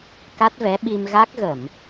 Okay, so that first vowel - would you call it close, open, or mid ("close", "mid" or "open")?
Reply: open